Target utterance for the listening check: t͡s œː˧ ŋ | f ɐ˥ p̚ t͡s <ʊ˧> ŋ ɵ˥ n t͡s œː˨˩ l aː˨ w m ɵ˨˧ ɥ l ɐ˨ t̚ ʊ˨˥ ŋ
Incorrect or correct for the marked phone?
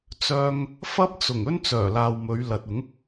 incorrect: ʊ˨˩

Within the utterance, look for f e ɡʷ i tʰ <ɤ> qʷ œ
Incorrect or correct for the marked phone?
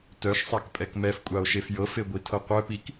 correct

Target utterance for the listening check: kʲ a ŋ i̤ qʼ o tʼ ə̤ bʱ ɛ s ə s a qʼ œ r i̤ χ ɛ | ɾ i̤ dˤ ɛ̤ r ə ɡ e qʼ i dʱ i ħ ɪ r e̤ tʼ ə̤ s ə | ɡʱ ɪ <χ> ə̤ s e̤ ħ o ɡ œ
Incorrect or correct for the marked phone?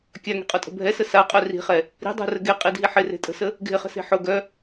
correct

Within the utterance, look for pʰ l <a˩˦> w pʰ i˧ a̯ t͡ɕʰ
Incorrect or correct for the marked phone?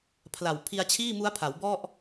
incorrect: a˨˩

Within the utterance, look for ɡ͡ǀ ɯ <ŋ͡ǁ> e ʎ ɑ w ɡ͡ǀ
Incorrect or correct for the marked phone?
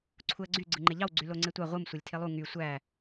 incorrect: ŋ͡ǃ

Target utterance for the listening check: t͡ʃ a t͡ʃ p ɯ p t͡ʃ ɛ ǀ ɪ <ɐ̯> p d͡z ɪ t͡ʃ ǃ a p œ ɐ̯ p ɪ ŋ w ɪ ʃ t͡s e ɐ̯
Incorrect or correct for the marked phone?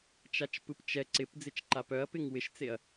incorrect: none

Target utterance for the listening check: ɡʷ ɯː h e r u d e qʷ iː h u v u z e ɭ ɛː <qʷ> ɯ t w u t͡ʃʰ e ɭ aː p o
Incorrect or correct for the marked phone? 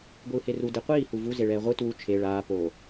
incorrect: ʁʷ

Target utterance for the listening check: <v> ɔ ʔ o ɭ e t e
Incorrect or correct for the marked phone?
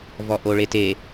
correct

